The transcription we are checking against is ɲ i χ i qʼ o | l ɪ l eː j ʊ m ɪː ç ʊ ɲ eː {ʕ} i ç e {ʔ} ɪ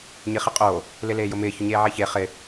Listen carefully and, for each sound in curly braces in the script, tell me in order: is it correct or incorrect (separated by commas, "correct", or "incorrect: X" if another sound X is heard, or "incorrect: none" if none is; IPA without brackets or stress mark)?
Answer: correct, incorrect: χ